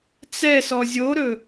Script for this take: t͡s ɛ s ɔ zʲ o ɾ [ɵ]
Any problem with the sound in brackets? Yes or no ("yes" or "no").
no